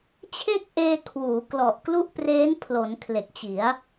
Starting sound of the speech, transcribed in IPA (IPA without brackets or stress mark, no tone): t͡ɕʰ